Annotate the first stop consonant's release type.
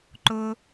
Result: click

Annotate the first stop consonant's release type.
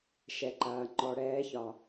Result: click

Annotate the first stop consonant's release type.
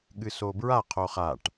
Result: implosive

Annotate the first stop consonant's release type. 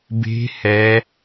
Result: plain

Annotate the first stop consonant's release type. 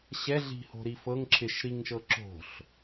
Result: click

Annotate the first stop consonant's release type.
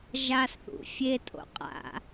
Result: ejective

